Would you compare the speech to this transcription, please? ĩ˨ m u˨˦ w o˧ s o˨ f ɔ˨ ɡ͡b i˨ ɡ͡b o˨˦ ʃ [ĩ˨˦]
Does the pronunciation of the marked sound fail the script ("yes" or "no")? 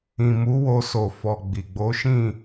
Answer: yes